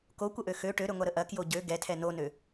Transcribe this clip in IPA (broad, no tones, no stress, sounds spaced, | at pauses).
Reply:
k o kʷ ə ʔ ø x ø ʈ ø ɾ ø ŋʷ a ɾ ə ʔ ɐ k j o ɟ ø ɡ ɛ tʰ ɛ n o n ø